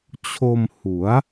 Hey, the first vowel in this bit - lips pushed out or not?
yes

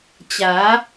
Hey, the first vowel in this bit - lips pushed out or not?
no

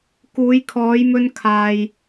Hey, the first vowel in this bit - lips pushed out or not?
yes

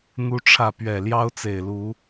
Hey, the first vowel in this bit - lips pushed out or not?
yes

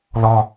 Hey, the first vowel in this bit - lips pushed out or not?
yes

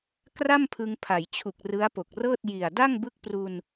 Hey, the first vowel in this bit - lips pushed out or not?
no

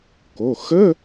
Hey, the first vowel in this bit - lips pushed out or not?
yes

